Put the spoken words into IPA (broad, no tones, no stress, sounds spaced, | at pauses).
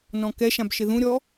n ɔ̃ k ɛ ʃ ã b ʃ ɪ ð ũ ɾʲ ɔ